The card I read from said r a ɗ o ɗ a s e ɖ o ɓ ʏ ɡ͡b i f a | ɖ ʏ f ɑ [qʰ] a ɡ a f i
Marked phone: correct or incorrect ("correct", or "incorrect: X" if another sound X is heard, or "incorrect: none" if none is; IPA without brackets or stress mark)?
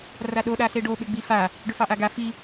incorrect: ʔ